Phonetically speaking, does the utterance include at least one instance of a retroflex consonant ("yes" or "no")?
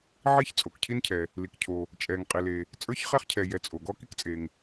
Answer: no